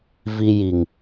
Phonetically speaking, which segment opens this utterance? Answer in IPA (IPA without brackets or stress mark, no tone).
v